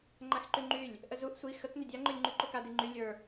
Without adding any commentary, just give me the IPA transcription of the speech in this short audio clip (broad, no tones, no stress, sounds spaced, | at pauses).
ŋ͡ǃ a x ǃ y ŋ͡ǃ y lʲ | ʔ ə z u ʔ sʷ i x ə k n ʏ dʲ a ŋ͡ǃ o lʲ ŋ͡ǃ y ǃ o k a d i ŋ͡ǃ y lʲ ə˞